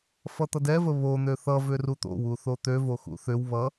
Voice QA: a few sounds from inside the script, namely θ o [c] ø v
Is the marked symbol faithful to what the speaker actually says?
no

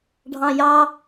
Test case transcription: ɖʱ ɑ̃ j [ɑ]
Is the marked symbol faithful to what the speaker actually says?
yes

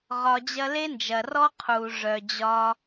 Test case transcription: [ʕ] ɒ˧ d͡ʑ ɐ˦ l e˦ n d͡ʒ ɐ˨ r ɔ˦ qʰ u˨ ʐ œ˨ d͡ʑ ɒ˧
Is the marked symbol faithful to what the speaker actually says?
no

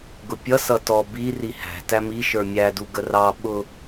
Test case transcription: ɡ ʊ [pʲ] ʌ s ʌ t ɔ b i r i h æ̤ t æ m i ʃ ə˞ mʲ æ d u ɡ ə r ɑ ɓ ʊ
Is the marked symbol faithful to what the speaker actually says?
yes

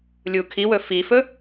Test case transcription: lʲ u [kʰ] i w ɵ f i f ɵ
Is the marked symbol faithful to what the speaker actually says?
yes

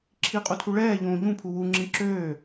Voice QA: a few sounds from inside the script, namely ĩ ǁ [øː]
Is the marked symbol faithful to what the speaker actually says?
yes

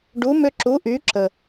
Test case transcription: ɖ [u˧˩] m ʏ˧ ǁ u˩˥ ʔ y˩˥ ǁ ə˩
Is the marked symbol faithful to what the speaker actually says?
no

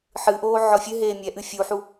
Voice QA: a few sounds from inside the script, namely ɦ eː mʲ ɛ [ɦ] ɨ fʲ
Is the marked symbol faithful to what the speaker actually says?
no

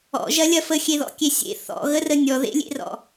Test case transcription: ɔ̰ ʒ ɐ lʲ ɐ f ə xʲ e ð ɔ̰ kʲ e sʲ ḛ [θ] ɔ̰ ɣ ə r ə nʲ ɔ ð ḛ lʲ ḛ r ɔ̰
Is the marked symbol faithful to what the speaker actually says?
yes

